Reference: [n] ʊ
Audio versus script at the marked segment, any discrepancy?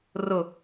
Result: yes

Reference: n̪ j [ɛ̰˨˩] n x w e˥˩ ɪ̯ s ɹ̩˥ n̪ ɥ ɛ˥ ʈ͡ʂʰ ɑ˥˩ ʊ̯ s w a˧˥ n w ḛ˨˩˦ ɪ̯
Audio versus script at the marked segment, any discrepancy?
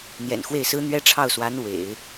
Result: no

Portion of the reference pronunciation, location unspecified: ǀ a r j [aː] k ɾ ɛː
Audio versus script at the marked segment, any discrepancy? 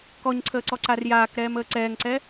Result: no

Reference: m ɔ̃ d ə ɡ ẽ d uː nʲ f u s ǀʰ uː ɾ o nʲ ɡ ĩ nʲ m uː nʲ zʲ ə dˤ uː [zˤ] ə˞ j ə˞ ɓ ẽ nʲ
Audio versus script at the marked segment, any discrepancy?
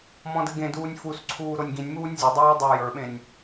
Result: yes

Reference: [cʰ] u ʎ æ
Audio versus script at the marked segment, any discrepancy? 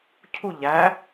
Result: no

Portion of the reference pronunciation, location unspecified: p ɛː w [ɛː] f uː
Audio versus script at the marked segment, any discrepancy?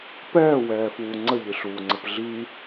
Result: no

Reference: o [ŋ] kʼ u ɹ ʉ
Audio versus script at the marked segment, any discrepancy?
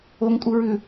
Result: no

